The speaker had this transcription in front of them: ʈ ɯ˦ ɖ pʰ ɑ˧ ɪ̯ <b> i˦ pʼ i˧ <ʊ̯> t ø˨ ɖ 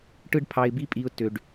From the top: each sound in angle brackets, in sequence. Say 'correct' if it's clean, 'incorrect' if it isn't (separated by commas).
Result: correct, correct